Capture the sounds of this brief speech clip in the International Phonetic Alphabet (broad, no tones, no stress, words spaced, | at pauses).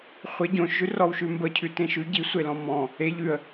χʷe ɟõʃʒʉrɔwʃʉ mbəcʰʉ tẽʃʉ ɟisʷelɔ̃ mɔ̃ | e ʎʉə̯